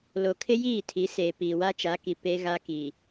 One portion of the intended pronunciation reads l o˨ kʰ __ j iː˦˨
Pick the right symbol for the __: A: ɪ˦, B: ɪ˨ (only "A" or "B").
A